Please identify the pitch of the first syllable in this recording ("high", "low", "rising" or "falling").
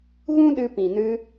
high